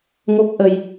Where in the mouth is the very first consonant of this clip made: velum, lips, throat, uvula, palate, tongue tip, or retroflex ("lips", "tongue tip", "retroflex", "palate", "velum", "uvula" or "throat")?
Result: velum